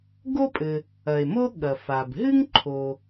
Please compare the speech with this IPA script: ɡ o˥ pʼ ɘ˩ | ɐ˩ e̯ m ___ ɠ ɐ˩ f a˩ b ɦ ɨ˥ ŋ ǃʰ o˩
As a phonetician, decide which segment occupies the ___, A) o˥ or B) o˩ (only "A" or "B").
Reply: A